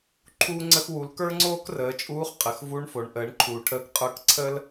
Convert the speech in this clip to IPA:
ǃʰ uː˧ ŋ͡ǀ ə˧ x w u˩˧ l k ə˞˥ ŋ͡ǀ oː˥ k r əː˩˧ t͡ʃʼ uː˧˥ χ qʼ ə˩˧ x v u˧˥ ɳ f o˩˧ ɳ ʔ əː˩˧ ɳ ǃʰ uː˩ ʈʰ əː˧ k qʼ ə˞˧˥ k ǀʰ ə˥ l

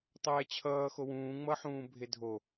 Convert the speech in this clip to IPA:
tˤ ɛː t͡ɕʰ ʌː x o w ũː ŋ͡m ʌ ħ ũː bʱ e dʱ o

